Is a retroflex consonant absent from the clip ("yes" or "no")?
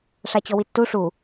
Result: no